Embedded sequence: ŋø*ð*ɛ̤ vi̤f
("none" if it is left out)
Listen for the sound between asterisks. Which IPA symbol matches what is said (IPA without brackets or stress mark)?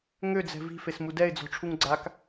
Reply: d͡z